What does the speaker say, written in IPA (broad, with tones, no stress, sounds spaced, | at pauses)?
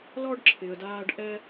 l ɔ˥ ɖ ǁʰ ɪ˨ ə̯ d aː˦ ɖ ʔ ɛ˥